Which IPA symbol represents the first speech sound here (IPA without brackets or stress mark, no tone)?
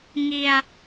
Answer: ŋ